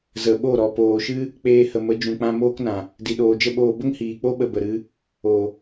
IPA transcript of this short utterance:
zə˨ɓo˦˨ɾɔ˨ poː˨ʃɨ˦ | k͡peː˧hə˨mə˨˦ d͡ʒũ˨k͡pã˧ moː˦knã˨ | di˨ɗoː˨d͡ʒə˦ɓoː˧ bə˦ŋhiː˨k͡po˦ ɓə˧bə˨ ɾɨ˦ | o˨

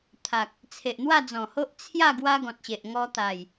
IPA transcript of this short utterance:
t̪ʰa˨k̚ | t͡sʰe˨ʔn̪wa˥˧d͡zɔ̃˨˩ho˦ʔ t͡sʰja˥˧ ɡwa˦ɡɔ̃˨t̚ɕe˨ʔ ŋɔ˧t̪a˨˩j

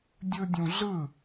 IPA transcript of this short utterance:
dʲɯdʲũɮɯ

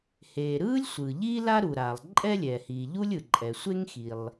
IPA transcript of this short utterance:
heː˩ ɾɯː˥lʲsʷɯː˩ʎiː˥ la˥ɾu˩ɾaː˩lˠ ǃʼɛ˥lʲɛː˩ hiː˩ ʎu˥lʲɯ˩ ǃʼɛ˩ sʷe˥ŋ xi˩lˠ

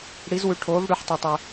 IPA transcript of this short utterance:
ɽi˨˦zwʉ˨˦ʈʰoː˨˦v ɽʉ˨˦ħtˤe˨tˤɵ˨

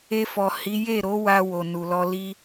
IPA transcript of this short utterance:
e˧fɔ˨ hi˨˦ je˦˨ɾo˨˦wa˧ wo˨nu˨lɔ˧ li˦

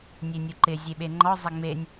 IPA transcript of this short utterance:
nʲenʲuǃɪ zʲeɓeŋ͡ǃɔ zˤeŋ͡menʲ

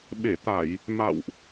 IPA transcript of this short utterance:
ɓe˧˩t̪a˧˩˨j | ma̰˧˨wʔ

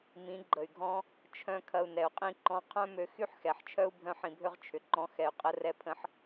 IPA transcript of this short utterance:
mĩ˨˦ɡ͡ǃə˨y̯ɡʱɔ̃˦ | t͡ʃʰœ̃˦ kʰɐ˧u̯nɛ˨u̯qʼĩ˦ ǃɔ̃˧ qʰœ̃˦mø˧ xy˦ħxɛ˨ħt͡ʃʰœ˦u̯ bʱœ̃˦ħĩ˧bʱø˦ʁ t͡ʃʰʏ˨ǃɔ̃˧xɛ˨y̯ qʼə˧rɛ˧pʰə̃˧ħ

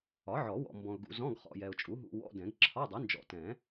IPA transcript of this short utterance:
ɒ˩˥ʕɔ˨˩˦wɔ̰˨ mbɔ̃˨ʊ̯ɡṵ˨zɔ̃˧˥˧ɡχɔ̰˨ jɛ˨ʊ̯t͡ʃʼu˩˥ɦṵ˧˥˧ wɔ̰˧˥˧dɛ̃˨˩˦ɡ ǁʰɒ˧˥˧dˤu˩˥ nd͡ʒɔ̰˨tɛ̃˨˩˦

